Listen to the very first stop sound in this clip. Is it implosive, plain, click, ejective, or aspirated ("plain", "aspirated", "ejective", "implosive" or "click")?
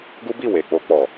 plain